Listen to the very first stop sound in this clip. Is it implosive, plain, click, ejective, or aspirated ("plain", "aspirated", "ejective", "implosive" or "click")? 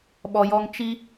implosive